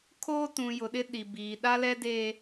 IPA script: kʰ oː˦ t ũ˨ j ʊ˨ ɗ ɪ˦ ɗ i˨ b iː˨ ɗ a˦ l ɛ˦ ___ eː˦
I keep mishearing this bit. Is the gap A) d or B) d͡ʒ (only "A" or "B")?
A